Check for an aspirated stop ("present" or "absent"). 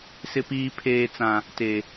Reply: present